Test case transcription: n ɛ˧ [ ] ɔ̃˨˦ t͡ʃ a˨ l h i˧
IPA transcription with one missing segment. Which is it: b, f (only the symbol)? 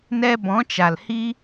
b